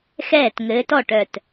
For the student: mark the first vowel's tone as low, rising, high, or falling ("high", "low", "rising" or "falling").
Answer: falling